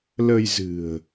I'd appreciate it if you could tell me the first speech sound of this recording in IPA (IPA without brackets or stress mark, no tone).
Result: l